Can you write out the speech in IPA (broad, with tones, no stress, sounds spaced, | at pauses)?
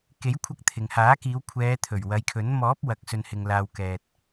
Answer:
k e˨˥ j kʷʰ ɐ˧ k̚ t̪ʰ ɪ˨ ŋ h aː˨˥ k iː˨˧ w kʷʰ ɛː˨˧ t̪ʰ ɵ˨˩ ɥ w ɐ˨˧ j kʰ ɵ˨˥ n m ɔː˨˥ p̚ w ɐ˨ k̚ s ɵ˨ n h ɪ˨ ŋ l aː˨ w k ɛː˨ t̚